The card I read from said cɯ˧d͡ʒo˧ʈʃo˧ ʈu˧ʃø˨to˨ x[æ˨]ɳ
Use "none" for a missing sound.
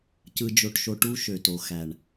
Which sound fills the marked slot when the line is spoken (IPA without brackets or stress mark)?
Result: æ˨